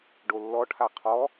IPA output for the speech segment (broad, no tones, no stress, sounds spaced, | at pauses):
ɖ o lː ɔ ʈʰ a qʰ ɔ